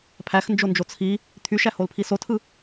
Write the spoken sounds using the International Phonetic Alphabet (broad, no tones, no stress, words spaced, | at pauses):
pʰæxnd͡ʒond͡ʒo t͡sʰi | t̪ʰyʃæholpʰi sotʰɯ